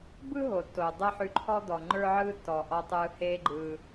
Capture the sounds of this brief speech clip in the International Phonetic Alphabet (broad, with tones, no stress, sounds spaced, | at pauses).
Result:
b ɯ˥ ɦ o˩ tː o˩ dˤ ɛ˥ ħ ʉ˧ ǃʰ ɔ˥ d̪ ɔ˩ ŋ͡ǃ ə˞˥ ʕ ɯː˥ tː ɔː˩ ʔ ɔ˧ tˤ ɯː˧ h eː˥ ɡ͡ǃ ɯ˧